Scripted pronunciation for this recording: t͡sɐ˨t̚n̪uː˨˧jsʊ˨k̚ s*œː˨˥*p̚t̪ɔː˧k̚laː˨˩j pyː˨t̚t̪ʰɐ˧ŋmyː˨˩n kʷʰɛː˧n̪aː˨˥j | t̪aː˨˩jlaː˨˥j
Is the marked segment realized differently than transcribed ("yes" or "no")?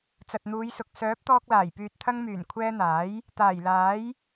no